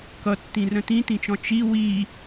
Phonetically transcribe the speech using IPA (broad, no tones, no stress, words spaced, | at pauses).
kʌtːĩrə̃ tĩtĩt͡ʃɔ̃ t͡ʃi wi